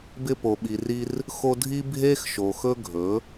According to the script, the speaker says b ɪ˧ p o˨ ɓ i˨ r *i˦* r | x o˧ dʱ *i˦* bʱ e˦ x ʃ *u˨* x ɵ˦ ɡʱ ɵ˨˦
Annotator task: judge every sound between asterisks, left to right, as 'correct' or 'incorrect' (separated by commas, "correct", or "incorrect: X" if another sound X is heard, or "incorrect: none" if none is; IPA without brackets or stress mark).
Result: incorrect: i˧, correct, incorrect: o˨